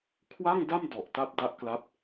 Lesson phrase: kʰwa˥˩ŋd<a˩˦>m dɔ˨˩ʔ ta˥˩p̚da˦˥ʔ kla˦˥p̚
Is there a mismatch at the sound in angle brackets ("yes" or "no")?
yes